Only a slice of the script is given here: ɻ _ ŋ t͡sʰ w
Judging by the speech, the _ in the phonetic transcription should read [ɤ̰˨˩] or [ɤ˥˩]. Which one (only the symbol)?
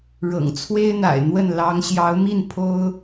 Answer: ɤ̰˨˩